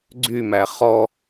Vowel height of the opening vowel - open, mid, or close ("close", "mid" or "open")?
close